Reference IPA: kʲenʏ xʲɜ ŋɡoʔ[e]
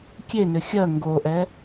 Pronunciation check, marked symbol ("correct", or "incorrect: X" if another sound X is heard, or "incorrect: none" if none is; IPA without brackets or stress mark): incorrect: ɛ